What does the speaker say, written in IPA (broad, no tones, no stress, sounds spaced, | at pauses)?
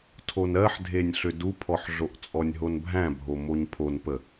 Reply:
tʰ o n ɜ ħ dʱ e nʲ ɬ ʏ d u pʰ ɔ ħ ɮ o ʔ t͡sʼ ɔ nʲ ɦ o n bʱ æ̃ bʱ o m o ɲ pʰ o n p ə